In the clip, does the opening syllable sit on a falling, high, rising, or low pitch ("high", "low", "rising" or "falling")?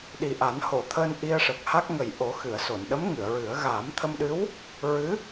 low